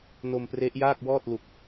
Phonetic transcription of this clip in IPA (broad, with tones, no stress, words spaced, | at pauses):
no˧mpre˦˥ʔjaː˥˩k̚wɔː˥˩t̚ lu˨˩k̚